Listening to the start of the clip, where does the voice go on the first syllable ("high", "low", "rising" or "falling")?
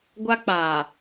high